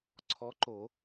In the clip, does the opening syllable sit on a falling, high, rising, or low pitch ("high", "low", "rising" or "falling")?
rising